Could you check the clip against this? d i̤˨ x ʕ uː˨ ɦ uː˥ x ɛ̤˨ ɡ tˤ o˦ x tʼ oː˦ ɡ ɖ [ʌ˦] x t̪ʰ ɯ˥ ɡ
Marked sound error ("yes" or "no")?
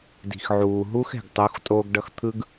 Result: no